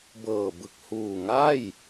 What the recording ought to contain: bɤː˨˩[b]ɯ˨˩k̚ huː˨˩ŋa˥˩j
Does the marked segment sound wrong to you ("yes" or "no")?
no